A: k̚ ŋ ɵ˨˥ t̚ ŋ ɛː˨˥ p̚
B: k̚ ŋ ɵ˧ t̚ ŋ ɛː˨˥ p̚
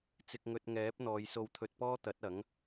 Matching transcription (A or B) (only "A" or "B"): B